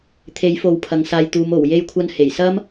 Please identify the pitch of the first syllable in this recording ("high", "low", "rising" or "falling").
rising